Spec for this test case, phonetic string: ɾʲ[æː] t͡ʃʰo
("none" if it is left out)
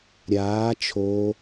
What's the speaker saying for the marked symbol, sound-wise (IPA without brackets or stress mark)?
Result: aː